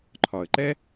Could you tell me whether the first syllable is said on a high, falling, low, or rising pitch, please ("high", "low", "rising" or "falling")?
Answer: low